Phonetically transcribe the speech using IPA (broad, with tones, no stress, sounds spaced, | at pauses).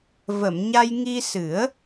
v ə˨˩˨ m ɲ a˧ j ŋ i˧ s ɨ˨˩˦ ə̯